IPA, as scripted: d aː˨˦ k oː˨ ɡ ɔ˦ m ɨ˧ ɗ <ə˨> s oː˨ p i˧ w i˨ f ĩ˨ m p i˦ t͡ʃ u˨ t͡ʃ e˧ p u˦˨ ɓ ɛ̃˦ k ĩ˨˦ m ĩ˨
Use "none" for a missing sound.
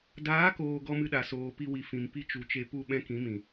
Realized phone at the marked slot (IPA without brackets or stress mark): a˨